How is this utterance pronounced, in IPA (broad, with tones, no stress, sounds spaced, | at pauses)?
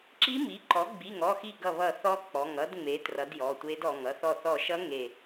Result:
ǁ i˧˥ m i˩˥ ǃ ɔ˩˥ ɡ͡b i˩˧˩ ŋ ɔ˩˧˩ x i˧˩ ɡ ʌ˧˩ β ʌ˧˩ θ ɔ˧˥ k͡p ɔ˩˧˩ ŋ ʌ˧˥ d ŋ͡m e˩˥ t r ʌ˩˥ d j ɔ˩˧˩ tʷ e˧˥ d ɔ˩˧˩ ŋ ʌ˧˩ θ ɔ˧˩ θ ɔ˧˩ ʃ ʌ˧˥ ŋ e˧˩